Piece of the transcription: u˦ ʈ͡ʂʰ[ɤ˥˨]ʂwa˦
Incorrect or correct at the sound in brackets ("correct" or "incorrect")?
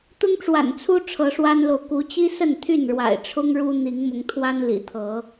incorrect